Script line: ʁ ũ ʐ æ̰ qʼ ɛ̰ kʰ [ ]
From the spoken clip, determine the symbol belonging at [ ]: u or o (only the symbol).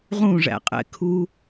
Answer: u